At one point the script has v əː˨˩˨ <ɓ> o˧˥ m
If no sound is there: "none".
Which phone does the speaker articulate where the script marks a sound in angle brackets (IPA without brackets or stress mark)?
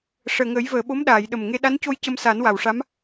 ɓ